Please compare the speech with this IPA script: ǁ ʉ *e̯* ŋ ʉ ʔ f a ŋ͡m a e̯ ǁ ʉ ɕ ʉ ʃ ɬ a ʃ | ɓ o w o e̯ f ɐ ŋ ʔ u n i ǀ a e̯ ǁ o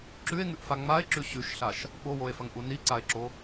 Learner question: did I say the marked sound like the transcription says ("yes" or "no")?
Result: yes